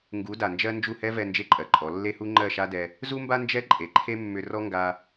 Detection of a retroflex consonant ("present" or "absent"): absent